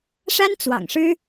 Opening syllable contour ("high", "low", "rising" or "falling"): high